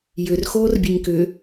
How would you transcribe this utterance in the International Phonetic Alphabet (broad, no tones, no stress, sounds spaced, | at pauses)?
j ʏ r x oː r bʲ ɛ ɲ k ʏ